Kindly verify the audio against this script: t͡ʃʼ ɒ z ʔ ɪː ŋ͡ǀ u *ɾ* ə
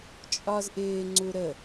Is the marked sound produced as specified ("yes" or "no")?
yes